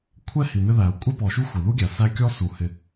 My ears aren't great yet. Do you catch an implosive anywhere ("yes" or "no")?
no